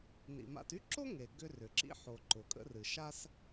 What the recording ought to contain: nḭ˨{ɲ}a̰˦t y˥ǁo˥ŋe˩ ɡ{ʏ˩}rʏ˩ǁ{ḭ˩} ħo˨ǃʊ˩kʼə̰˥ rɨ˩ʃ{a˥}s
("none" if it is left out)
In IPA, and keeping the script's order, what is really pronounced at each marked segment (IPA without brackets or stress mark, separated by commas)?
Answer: m, ʏ˥, ḭ˥, a˥